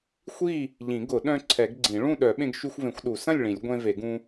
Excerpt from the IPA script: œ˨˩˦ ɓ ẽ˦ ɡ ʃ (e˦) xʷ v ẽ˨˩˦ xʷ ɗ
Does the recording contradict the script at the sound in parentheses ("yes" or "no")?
yes